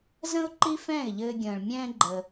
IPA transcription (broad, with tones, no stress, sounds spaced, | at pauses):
z ə̃˥ ʊ̯ ǃ i˥ f ɛ̃ː˥˩ ɪ̯ ʎ ɘː˧ ɡʲ ə̃ː˩ ɭ mʲ ɛ̃ː˥ ɡ͡ǃ ə˩